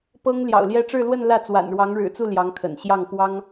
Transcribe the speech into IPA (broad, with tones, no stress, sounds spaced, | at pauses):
p ɤ˥ ŋ l j ɑ̰˨˩ ʊ̯ l j ɛ˥˧ ʈ͡ʂ ɻ̩˥˧ l w ə˥˧ n l ä˥˩ t͡s w a̰˨˩ n ɻ w ɑ˧˥ ŋ ɻ ɻ̩˨˩ t͡s u˥˩ l j ɑ˧˥ ŋ kʰ ə̰˨˩ n ɕ j ɑ˥˩ ŋ p w ɑ˥ ŋ